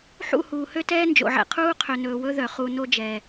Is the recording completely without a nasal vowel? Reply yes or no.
yes